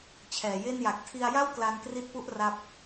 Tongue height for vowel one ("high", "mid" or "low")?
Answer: mid